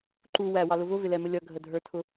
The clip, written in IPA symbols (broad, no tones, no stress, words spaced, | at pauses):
ǃu wæwɑlʊ vʊvɪlɛmə lʲʌɡʱədʱə˞tʰʊ